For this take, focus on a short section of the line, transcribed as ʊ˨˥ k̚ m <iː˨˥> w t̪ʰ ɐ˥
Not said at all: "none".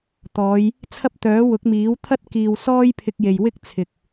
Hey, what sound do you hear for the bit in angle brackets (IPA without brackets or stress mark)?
iː˨˥